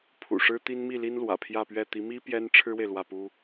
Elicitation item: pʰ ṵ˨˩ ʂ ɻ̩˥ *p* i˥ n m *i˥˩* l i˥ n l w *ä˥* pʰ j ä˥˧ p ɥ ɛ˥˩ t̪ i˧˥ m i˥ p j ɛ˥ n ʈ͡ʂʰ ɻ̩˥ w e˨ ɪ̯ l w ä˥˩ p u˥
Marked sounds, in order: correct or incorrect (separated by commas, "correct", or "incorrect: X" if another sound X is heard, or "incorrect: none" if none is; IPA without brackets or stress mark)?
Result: incorrect: t̪, correct, incorrect: ä̰˨˩